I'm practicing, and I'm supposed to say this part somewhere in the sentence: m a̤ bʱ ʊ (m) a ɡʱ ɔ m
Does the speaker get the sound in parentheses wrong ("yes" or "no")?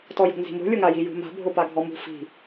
yes